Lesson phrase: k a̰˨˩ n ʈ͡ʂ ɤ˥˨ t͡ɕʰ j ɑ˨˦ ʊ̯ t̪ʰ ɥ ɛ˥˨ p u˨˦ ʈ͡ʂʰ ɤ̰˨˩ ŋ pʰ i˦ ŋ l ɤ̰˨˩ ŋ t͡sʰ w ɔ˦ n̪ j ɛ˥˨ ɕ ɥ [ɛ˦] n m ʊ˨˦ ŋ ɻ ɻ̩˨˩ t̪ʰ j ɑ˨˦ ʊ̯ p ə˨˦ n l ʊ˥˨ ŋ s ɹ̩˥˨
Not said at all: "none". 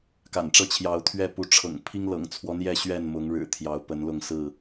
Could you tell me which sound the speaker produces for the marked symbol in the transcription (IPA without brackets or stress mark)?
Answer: ɛ˥˨